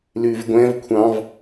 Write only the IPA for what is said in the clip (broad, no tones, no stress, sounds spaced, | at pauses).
l ʉ v ɡʷ ɛ̃ v kʷʰ ɑ̃ v